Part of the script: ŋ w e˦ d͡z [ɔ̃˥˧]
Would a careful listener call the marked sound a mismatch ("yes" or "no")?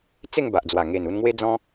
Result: yes